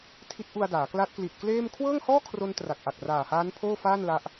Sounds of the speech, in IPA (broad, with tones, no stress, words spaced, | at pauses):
tʰi˦˥t̚ʔu˧a̯daː˩˦ kla˦˥t̚kli˨˩t̚kleː˥˩m kʰwɤː˥˩ŋhɔː˥˩kʰro˧n tra˨˩k̚ʔa˨˩k̚ raː˨˩haː˦˥n pʰoː˥˩faː˥˩nla˦˥ʔ